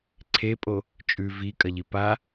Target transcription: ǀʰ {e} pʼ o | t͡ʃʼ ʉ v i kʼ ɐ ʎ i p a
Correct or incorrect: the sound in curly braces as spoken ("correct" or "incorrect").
correct